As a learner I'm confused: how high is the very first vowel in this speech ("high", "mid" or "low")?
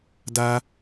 low